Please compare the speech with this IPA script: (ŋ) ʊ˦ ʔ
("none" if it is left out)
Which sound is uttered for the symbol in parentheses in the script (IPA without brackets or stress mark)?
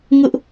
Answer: ŋ